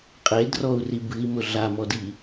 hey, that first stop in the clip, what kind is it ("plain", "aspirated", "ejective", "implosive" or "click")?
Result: ejective